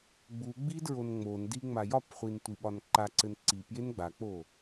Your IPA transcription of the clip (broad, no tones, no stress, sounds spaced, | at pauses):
ɡ͡b u ɡ͡b i d ɹ o n ŋ͡m o n d i ŋ͡m a j ɒ p χʷ i n tʷ i ɓ ɒ n ǃ a ǀ ɘ n ǀ i p j e n ɡ͡b a k͡p o